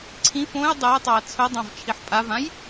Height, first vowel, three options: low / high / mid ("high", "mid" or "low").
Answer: high